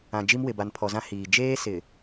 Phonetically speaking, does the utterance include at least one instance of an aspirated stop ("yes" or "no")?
yes